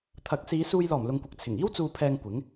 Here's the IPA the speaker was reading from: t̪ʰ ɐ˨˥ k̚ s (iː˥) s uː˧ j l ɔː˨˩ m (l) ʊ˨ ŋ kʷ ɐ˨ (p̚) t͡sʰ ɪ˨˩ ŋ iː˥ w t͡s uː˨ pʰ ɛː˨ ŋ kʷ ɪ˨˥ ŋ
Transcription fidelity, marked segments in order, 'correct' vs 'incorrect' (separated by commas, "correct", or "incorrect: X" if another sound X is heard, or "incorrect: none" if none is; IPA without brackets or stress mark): incorrect: iː˨˧, correct, incorrect: k̚